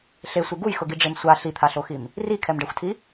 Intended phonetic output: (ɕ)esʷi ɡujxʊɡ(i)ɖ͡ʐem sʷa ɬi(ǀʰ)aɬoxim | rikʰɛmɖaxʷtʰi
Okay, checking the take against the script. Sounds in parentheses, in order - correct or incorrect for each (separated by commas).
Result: incorrect, correct, incorrect